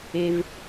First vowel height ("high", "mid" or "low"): mid